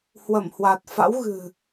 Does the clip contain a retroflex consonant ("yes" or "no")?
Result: no